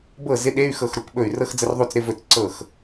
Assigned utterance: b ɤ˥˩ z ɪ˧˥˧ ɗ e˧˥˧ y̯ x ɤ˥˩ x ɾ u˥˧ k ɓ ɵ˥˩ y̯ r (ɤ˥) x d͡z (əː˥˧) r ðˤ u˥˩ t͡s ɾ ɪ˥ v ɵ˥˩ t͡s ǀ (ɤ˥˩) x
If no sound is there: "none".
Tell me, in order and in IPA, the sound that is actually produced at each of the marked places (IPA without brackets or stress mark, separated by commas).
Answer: ɤ˥, ə˥˧, ɤ˥˩